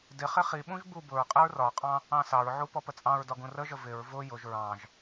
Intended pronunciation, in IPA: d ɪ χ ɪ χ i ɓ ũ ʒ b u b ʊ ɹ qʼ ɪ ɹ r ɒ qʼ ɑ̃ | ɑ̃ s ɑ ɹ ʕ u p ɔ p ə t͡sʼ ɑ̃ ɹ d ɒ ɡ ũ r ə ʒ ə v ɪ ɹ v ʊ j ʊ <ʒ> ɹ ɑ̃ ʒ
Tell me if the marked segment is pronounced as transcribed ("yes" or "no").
yes